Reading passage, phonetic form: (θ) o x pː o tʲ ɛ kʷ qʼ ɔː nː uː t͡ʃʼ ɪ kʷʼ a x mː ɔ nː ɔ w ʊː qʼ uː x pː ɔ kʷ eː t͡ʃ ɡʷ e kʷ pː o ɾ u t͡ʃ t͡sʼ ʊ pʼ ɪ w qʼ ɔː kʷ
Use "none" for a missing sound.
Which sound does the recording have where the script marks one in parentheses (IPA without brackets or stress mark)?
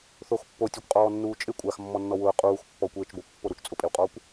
θ